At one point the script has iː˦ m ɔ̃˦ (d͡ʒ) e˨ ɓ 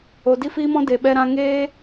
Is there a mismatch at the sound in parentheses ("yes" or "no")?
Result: yes